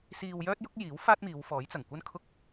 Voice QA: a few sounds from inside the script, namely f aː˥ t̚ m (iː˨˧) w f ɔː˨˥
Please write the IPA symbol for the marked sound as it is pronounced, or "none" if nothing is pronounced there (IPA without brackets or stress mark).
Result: iː˨˧